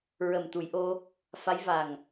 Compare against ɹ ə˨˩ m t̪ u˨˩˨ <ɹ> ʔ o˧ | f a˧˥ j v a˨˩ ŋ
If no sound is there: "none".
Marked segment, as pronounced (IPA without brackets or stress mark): j